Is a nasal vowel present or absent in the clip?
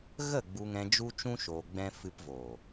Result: present